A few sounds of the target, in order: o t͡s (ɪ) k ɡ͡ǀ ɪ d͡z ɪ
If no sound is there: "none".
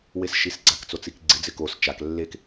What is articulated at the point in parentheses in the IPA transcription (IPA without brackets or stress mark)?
i